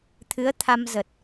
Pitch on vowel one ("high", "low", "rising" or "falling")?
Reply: rising